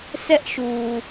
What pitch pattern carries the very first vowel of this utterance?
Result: high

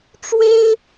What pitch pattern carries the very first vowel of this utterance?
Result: high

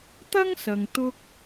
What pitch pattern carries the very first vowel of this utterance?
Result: high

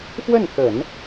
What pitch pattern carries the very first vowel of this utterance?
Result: falling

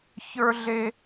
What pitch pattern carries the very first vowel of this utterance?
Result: high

